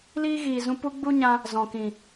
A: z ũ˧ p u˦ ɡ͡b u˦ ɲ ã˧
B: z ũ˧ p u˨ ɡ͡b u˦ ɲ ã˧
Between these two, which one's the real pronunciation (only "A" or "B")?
A